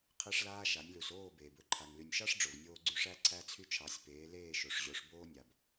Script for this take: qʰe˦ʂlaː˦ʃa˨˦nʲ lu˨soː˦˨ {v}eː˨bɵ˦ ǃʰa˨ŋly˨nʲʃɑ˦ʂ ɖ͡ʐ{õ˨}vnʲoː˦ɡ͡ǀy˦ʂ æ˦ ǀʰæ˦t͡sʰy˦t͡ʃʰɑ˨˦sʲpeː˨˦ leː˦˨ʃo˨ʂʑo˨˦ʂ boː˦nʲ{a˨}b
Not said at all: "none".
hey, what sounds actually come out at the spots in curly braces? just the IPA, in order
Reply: b, o˨, a˨

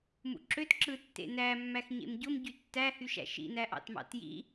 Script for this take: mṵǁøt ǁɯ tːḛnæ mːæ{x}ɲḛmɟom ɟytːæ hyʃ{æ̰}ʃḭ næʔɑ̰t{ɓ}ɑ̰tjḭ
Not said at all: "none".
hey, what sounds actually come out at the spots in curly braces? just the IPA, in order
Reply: x, æ̰, m

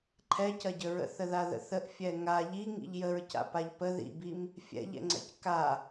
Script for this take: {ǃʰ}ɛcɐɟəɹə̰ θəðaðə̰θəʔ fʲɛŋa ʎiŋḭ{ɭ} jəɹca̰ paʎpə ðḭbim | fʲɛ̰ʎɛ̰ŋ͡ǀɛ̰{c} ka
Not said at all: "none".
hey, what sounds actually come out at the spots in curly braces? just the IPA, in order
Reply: ǃʰ, ʎ, c

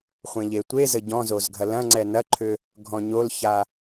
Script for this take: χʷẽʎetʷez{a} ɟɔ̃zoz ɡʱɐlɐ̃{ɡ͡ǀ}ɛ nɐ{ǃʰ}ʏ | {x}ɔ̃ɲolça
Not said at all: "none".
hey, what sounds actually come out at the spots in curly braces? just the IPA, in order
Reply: ə, ŋ͡ǀ, ǃʰ, ɡʱ

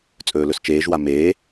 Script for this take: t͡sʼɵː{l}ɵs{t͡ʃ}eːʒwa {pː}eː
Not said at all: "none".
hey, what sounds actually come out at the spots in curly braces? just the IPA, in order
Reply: l, t͡ʃ, m

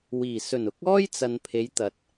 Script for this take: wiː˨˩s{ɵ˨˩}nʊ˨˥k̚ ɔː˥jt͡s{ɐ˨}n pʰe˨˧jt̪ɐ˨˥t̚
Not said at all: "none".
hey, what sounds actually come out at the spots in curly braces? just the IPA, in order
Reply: ɵ˨˩, ɐ˨

